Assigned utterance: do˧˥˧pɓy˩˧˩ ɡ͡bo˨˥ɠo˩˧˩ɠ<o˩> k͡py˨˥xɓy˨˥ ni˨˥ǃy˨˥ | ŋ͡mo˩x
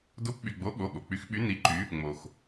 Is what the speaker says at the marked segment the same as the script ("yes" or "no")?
yes